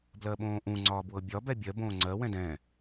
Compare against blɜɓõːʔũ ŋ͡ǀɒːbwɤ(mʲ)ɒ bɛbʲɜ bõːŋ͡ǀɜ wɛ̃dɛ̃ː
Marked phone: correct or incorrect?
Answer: incorrect: bʲ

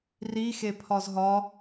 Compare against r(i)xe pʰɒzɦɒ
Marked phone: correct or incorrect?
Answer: correct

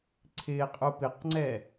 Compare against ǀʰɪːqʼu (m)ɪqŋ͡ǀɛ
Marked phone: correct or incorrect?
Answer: incorrect: p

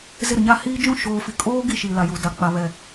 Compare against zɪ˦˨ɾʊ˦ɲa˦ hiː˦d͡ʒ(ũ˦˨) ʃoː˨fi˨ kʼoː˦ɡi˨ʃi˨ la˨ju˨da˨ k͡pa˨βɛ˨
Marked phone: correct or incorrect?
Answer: correct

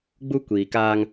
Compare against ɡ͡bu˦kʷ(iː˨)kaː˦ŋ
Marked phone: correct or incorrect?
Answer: correct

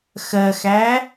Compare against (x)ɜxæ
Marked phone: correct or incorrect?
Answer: correct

